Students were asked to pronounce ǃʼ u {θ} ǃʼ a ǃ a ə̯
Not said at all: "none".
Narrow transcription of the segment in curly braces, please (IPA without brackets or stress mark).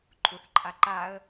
θ